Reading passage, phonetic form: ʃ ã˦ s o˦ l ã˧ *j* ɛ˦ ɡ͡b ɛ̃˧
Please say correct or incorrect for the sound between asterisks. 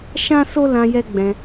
correct